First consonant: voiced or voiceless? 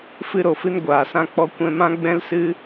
voiceless